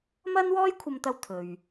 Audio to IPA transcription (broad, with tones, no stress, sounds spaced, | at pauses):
m ɐ˥ n w ɔː˥ j kʷʰ ɐ˧ m t̪ ɐ˧ w t̪ʰ ɵ˨ ɥ